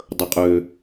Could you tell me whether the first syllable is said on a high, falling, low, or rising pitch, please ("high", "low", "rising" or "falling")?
high